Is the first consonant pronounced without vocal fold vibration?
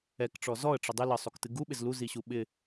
yes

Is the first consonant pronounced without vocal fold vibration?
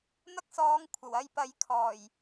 no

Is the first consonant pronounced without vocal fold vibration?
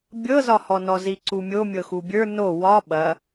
no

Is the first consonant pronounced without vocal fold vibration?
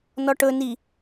no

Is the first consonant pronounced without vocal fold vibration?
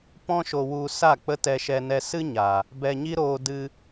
yes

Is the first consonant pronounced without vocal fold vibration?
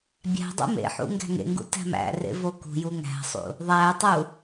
no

